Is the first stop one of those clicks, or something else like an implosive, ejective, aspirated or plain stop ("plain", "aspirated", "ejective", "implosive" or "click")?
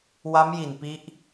plain